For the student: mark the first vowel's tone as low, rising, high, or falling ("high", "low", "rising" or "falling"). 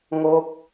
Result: falling